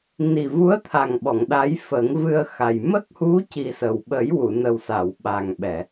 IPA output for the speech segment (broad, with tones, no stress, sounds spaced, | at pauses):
n i˨˩ v u˧˥ ə̯ t̪ʰ a˨˩ ŋ ɓ ɔ˨˩˨ ŋ ɗ a˧˥ j f ə˨˩˦ ŋ v ɨ˧ ə̯ x a˨˩ j m ə˦˥ k̚ h u˧˥ c i˨˩ s ə˨˩ w ɓ ə˨˩˦ j w u˨˩˨ n ə˨˩ w s a˨˩˨ w ɓ a˨˩ ŋ ɓ ɛ˨˩˨